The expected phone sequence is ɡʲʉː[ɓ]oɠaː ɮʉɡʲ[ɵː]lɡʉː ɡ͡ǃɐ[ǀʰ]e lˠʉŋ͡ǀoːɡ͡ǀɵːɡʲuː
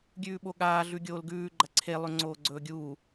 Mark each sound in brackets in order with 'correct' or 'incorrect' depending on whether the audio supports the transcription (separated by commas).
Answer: correct, incorrect, correct